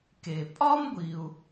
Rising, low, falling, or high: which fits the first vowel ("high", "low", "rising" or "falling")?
low